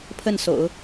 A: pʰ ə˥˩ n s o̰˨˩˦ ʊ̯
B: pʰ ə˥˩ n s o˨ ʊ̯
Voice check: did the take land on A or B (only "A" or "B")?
A